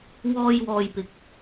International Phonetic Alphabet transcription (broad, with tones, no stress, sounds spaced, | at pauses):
w ɔː˧ j w ɔː˨ j p ɪ˨ k̚